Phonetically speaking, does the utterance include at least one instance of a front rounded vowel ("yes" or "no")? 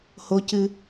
no